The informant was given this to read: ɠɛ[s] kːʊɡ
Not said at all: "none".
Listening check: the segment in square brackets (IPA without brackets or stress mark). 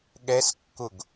s